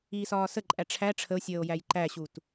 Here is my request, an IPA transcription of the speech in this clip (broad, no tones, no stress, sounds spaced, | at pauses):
iː s ɒː s ə ǃʼ æ ʈ͡ʂʰ æ ʈ͡ʂʰ ə o̯ sʲ əː o̯ j æ j ǃ æ ɕ u t